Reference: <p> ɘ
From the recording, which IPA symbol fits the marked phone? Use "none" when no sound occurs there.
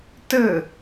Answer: t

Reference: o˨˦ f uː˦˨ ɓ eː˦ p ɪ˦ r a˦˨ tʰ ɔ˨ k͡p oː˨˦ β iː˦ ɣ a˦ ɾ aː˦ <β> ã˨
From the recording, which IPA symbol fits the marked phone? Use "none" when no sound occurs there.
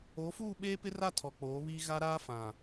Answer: f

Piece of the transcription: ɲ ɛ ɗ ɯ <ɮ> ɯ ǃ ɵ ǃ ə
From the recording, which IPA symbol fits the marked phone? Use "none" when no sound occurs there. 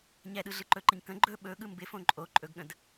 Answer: ɮ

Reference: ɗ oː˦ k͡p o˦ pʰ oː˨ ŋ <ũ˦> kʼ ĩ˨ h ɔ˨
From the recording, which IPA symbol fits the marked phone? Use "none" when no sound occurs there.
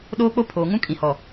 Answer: ũ˦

